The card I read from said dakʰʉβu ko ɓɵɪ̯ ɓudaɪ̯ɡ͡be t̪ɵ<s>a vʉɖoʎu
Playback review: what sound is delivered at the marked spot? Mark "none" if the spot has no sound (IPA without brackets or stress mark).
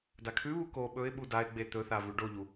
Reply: θ